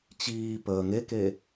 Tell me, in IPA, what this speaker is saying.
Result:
t͡ɕ iː p əː ŋ e k e

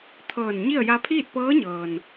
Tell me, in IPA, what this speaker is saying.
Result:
t̪ʰ ɤː˧˩ n ɲ i˥˨ ə̯ j a˧ pʰ iː˥˨ t̚ p ɤː˧˥ ɲ ɤː˩ n

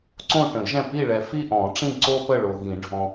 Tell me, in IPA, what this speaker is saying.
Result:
ǀ õ˦˨ u̯ ʈ ə̃˨˩˦ i̯ ʒ ɛ̃˦˨ p i˦˨ ɭ ɛ˨ f i˦˨ ʔ ɔ̃˨˩˦ ʈ͡ʂ ĩ˦˨ ǀ o˦ p ə˦˨ ɭ o˨ ɣ ĩ˨˩˦ ɖʱ ɔ̃˨

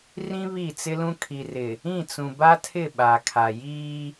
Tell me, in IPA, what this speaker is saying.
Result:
r ĩ˦ β i˦˨ t͡s ɪ˦ l ũ˦ kʰ i˨ r ɪ˨ | ĩ˦˨ t͡s ũ˨ b a˦ tʰ ɪ˦˨ ɓ a˨ kʰ a˨ j iː˦

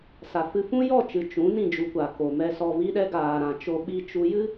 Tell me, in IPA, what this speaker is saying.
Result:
s a˨ f ɨ˧ f ũ˦ j ɔ˦˨ t͡ʃ ɨ˨ t͡ʃ ũ˨˦ n ĩ˦˨ d͡ʒ u˧ kʷ a˨ k o˨ m ɛ˨ s ɔ˨ v i˧ ɗ ɛ˧ ɡ aː˨ ɾ ã˨ t͡ʃ o˧ ɓ i˧ t͡ʃ u˧ j ɨ˦

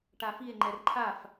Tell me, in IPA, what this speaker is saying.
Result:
ʈ a f i e̯ ŋ͡ǃ ɛ r ǃʰ a f

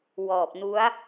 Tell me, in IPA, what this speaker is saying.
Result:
w ɔː˨˩ p̚ n u˦˥ a̯

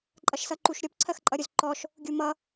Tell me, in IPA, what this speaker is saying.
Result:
ǃʼ ʌ ʃ s ʌ ǃ u ʃ ɾʲ ɔ p ǀʰ ɜ x ǃʼ ʌ ɾʲ ʊ z ǃ ɔ ʃ | ɡʲ u m ʌ

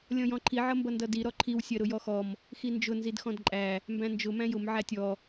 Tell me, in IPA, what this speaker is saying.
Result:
lʲ ɔ̃ j ɔ̃ ǃʰ i ʕ ʌ m b ʌ n d ʌ d i ɾ ɔ ǃʰ i w sʲ ɜ ɾ ʊ j ɔ x ɔ m | x i n d͡ʒ ʊ n z i d x ɔ̃ d ǃʼ æ | m b æ̃ n d͡ʒ ʊ m æ̃ j ʊ m ʕ æ tʲ ɔ

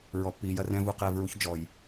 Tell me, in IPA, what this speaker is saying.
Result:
ɹ ɔ˨ pː iː˨ j ɐ˦ r ɛ̃˦ v u˨ q ɛː˧ v ɹ u˦ ç d͡ʒ ɔ˨ j

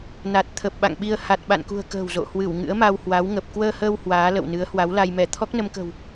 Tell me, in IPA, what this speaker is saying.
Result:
n a˨˩ t̚ t̪ʰ ə˨˩ p̚ ɓ a̰˧˨ ŋ ɓ i˧ ə̯ h a˨˩ t̚ ɓ a̰˧˨ n k ṳ˨˩ ə̯ k ə̤ː˨˩ w z o̰˧˨ h w ɨ˧˩ w ŋ ɨ̰˧˥ ə̯ m a˧ w h w a˨˦ w ŋ ə˨˩ p̚ k w əː˧ h əː˧ w h w aː˨˦ l ə̰˧˨ w n ɨ˨˦ ə̯ h w a˨˦ w l a˧ j m ɛ˧˩ t̪ʰ ɔ˦˥ k̚ n ə˧ m k ə̤˨˩ w

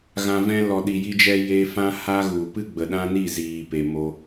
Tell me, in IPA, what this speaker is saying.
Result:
ɣ ã˧ v ɛ̃˦ l ɔ˨ ɗ i˨ j i˧ d͡ʒ ɛ˧ j e˧ f ã˦ h a˦ ɣ u˨ p ɨ˦ ɡ͡b ə˨ ɗ ã˦ n i˦˨ z iː˨ p e˨ m o˧

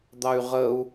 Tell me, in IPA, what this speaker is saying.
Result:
d̪ ɑ y̯ ʁ ə u̯

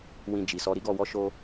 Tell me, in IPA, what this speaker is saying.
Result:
w ĩ˧ d͡ʒ i˨ s ɔ˧ ɾ i˦ ɡ ɔ˧ w ɔ˦ ʃ o˦

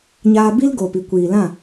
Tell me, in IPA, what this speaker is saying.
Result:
ɲ aː˧ b i˦ l ɡ oː˨ p i˨ kʷ iː˨ l ã˦˨

